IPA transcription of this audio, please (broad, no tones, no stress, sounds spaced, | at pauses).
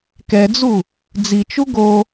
k ɛ d͡z u | d͡z i t͡ʃ u ɡ o